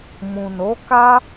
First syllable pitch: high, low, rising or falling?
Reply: low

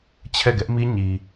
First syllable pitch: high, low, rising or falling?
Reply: falling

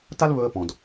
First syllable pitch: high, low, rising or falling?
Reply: high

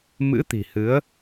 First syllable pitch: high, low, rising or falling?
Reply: rising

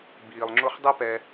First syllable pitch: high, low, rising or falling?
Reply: low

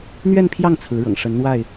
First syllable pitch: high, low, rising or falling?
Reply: falling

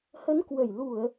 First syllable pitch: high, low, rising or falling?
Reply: rising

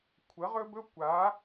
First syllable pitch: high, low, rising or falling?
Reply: rising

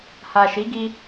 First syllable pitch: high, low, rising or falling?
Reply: low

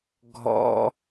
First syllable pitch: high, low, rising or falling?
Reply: high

